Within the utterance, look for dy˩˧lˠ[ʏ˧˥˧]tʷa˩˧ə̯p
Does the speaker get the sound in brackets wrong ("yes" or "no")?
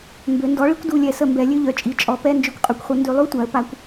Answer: yes